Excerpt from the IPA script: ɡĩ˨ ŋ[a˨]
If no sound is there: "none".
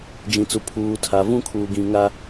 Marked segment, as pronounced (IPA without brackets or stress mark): a˦